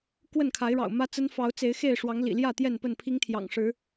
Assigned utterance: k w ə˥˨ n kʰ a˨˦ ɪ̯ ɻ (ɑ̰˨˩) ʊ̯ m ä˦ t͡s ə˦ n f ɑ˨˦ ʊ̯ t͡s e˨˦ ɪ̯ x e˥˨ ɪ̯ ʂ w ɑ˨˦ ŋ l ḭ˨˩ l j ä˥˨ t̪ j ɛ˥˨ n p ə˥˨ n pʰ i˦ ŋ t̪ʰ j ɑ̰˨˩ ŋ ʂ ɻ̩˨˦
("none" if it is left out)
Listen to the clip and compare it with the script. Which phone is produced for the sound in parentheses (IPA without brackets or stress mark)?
ɑ̰˨˩